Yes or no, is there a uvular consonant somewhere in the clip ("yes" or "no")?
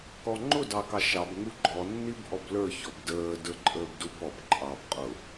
yes